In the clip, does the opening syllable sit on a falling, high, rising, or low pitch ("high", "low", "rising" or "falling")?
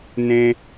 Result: high